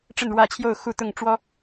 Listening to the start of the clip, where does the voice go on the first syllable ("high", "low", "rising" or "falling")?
falling